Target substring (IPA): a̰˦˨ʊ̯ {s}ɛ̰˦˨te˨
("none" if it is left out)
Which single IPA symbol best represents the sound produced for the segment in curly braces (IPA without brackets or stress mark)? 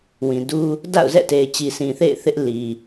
z